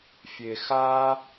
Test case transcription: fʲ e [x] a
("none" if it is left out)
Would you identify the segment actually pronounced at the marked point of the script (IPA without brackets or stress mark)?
x